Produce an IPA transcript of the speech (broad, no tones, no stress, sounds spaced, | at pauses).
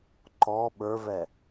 ǃ ɔ ɓ ə˞ v ɛ